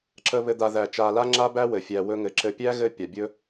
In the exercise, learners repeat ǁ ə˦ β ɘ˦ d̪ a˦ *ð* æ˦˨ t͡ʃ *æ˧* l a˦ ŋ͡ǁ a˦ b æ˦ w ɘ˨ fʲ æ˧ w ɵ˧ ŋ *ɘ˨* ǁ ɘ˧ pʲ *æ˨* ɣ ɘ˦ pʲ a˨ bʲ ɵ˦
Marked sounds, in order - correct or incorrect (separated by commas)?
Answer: correct, incorrect, correct, incorrect